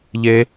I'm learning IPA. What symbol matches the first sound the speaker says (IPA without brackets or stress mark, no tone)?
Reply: ʎ